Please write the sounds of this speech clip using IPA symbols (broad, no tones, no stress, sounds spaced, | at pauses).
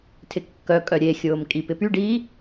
tʰ ɪ kː œ kʼ œ ɾʲ e xʲ ʊː m kʼ i p ɪ p y ɖ iː